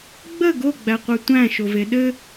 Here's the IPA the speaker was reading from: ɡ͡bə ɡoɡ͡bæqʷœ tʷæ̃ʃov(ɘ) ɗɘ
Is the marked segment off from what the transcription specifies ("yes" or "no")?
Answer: yes